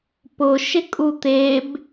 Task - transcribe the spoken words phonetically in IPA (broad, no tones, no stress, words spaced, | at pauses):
pʊʃɪkʼu t̪eb